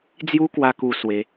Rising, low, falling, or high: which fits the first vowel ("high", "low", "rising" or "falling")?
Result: high